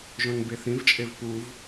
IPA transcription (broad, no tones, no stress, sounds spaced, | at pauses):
ʒ õ n b e θ ĩ v t͡ʃʼ e v p u v